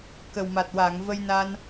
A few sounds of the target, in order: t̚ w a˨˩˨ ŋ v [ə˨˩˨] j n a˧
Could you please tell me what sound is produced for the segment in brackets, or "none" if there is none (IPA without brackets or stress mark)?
ə˧